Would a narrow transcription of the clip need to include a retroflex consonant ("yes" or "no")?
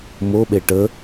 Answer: yes